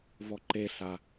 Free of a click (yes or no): no